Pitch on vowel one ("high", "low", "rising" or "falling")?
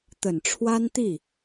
low